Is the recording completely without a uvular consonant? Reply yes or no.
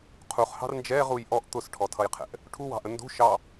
no